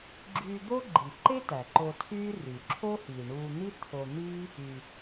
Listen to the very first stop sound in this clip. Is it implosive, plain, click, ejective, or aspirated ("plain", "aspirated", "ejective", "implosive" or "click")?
click